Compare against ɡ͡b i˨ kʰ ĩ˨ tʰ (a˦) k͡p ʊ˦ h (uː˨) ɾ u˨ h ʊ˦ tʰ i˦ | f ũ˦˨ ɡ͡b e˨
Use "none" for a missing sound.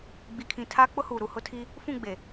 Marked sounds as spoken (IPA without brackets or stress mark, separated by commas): aː˦, uː˨